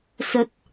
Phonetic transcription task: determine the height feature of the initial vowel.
mid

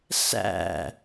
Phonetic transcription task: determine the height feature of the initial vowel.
low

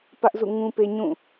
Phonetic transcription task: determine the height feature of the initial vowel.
low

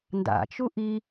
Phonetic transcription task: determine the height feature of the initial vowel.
low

